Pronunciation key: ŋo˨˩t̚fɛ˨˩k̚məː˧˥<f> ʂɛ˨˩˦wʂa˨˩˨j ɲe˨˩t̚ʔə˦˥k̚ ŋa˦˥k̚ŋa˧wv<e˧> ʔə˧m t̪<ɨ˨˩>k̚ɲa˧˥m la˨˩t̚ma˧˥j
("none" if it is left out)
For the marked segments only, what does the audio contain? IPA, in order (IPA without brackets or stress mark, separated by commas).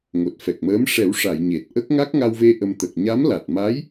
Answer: m, e˧, ə˨˩